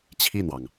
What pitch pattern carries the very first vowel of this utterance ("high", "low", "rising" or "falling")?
falling